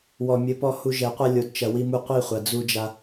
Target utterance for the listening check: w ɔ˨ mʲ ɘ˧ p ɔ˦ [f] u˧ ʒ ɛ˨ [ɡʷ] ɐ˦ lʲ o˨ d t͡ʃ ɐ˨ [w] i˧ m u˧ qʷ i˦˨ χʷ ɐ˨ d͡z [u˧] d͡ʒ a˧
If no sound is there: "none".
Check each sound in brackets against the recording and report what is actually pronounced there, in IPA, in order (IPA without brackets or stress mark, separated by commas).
h, qʷ, w, u˧